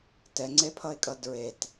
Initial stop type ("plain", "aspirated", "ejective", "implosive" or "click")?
plain